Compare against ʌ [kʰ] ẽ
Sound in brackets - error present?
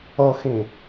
yes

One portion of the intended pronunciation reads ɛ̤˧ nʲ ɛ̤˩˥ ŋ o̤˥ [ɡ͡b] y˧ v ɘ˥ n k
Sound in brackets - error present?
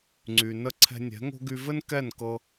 yes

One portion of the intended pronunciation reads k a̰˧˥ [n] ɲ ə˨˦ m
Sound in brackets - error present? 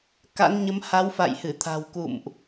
no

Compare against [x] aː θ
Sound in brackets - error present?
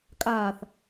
yes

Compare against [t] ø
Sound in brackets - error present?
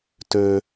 no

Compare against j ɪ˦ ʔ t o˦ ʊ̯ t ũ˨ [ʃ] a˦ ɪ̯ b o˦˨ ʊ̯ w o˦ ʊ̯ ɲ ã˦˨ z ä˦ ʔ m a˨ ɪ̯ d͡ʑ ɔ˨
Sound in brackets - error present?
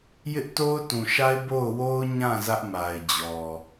no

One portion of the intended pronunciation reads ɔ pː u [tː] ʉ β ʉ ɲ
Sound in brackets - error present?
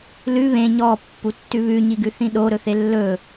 no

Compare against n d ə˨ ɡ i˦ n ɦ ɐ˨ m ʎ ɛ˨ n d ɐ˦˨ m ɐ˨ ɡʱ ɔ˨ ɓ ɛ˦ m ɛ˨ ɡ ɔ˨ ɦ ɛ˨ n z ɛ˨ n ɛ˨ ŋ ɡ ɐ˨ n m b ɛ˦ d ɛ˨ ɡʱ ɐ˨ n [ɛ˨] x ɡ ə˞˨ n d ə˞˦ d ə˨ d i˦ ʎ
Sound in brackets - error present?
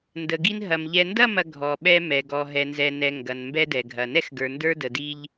yes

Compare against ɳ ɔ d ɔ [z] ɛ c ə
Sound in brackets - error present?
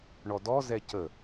no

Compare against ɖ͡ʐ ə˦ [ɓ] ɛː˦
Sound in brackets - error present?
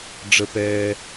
yes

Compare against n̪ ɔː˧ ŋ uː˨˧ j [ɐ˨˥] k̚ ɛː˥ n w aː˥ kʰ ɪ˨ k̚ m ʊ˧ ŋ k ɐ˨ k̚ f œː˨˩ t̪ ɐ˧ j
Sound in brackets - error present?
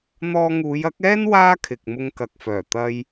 no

